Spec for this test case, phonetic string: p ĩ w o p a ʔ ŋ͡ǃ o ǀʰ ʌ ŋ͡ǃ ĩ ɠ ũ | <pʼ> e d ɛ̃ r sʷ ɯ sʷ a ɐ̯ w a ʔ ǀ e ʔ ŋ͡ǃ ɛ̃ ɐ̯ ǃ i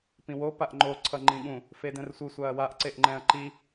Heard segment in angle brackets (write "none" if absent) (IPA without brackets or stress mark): f